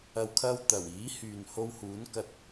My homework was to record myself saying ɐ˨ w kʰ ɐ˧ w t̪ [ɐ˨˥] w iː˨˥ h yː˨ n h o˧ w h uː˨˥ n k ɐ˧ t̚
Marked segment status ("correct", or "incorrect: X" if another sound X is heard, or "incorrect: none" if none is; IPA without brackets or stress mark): incorrect: ɐ˨˩